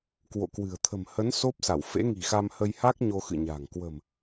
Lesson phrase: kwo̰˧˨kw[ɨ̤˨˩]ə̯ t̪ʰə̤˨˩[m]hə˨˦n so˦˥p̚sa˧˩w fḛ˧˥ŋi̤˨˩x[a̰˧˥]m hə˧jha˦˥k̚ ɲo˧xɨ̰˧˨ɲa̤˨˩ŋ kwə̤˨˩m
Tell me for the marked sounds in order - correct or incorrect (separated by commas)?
correct, correct, incorrect